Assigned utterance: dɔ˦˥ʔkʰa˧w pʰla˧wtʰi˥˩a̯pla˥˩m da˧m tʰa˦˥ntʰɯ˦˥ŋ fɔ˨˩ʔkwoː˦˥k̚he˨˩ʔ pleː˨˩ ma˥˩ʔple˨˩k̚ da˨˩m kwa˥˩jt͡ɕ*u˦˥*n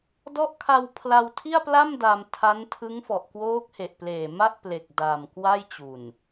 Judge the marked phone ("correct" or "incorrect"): incorrect